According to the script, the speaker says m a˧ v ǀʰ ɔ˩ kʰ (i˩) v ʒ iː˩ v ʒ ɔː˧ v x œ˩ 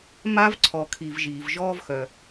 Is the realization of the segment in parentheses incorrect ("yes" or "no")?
no